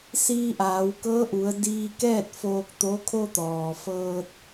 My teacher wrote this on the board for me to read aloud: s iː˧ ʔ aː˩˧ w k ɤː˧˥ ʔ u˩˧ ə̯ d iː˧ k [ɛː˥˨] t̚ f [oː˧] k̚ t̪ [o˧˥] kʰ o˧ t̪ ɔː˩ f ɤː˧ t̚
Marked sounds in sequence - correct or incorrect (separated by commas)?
correct, correct, correct